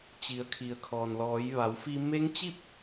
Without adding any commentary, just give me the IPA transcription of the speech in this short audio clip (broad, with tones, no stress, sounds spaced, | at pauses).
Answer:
t͡ɕ i˩˧ ə̯ kʰ i˩ ə̯ kʰ ɔː˩ n l ɔː˩˧ j ʋ a˩˧ w f i˧ m e˧˥ ŋ t͡ɕ i˥˨ p̚